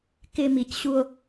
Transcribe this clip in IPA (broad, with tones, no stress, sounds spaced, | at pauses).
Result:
k ɪ˨ m i˨ c ɕ u˦ o̯